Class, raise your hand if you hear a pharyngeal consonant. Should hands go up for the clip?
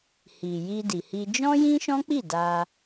no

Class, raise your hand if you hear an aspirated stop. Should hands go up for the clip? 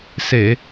no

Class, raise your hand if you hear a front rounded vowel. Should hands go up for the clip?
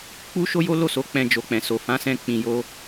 no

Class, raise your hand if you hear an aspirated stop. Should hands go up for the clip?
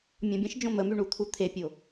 yes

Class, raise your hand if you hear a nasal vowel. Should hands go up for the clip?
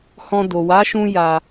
yes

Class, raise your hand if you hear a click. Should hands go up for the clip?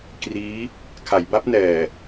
no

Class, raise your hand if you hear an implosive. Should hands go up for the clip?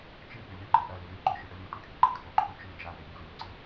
no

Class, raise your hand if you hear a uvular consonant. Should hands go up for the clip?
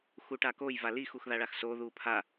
no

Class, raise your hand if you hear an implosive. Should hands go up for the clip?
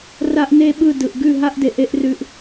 yes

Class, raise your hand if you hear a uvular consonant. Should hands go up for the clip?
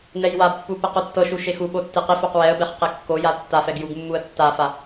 yes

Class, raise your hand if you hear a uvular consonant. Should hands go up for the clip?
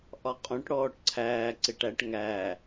yes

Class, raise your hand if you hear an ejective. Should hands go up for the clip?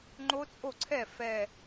yes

